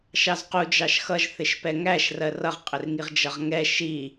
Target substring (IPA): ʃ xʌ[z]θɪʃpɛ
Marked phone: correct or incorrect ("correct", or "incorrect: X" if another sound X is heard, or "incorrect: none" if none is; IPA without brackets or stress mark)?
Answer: incorrect: ʒ